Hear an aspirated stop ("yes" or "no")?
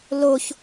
no